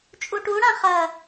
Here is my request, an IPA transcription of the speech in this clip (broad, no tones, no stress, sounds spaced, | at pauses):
t͡ʃʼ u ʈ u ɽ ã χ ɐ